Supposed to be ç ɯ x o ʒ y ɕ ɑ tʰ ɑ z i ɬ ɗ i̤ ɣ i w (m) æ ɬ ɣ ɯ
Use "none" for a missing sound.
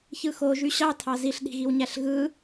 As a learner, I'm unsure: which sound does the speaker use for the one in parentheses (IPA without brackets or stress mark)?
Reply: ɲ